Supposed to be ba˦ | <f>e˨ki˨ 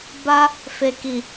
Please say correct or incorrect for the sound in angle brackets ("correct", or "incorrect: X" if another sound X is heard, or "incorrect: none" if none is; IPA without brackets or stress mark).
correct